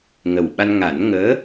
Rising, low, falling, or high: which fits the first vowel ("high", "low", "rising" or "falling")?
low